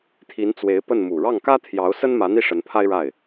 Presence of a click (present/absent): absent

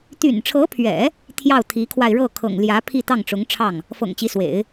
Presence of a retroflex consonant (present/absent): present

